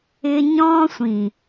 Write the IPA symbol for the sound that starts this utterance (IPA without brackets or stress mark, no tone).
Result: ɪ